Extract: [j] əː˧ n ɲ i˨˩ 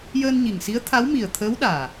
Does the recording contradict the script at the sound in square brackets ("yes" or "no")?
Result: no